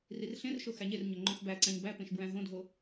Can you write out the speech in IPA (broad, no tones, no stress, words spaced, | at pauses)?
rirɬẽrʃo xæɲerɲo ŋ͡ǃõxbæǀæ̃ɲ bæpẽʃ bɹæ̃ɦõdʱo